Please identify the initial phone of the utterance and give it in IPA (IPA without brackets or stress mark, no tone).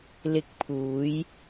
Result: l